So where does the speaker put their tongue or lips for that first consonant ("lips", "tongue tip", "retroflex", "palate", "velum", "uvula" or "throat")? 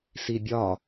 tongue tip